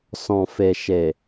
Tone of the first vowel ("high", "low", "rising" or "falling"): low